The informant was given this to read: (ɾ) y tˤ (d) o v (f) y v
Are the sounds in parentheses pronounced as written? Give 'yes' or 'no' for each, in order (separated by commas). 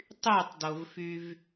no, yes, yes